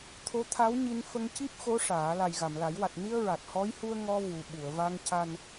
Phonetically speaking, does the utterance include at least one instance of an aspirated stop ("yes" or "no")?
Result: yes